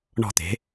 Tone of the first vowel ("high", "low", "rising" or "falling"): falling